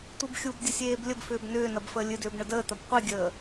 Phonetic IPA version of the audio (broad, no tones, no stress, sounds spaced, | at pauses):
tʷ i b xʲ u b dʲ ə sʲ eː b lʲ ə b f ʏː b n ʏː n ɐ b f əː lʲ ɨ d ʏː b ɳ ə d əː t̪ ɐ b qʷ i ɡʲ əː